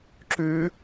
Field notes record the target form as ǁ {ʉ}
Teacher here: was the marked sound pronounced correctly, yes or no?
yes